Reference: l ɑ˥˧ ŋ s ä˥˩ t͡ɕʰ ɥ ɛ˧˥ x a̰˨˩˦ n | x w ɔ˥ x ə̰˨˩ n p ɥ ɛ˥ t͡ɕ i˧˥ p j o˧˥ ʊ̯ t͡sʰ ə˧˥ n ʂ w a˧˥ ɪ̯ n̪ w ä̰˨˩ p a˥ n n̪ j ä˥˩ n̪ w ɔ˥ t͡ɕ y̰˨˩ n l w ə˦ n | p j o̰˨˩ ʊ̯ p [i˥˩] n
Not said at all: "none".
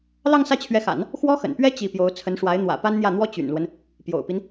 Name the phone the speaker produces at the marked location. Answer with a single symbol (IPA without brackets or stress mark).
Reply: i˦